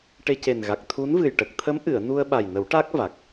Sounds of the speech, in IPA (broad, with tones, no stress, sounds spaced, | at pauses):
ʈ e˧ c e˨˩ n ɣ a˨˩ k̚ t̪ʰ u˧˥ n v ɨ˨˩ j ʈ ə˨˩ k̚ t̪ʰ ə˧˥ m ʔ ɨ˨˩˨ ə̯ n u˧ ə̯ ɓ a˨˩ j n ə˨˩˦ w ʈ a˦˥ k̚ v a˨˩ k̚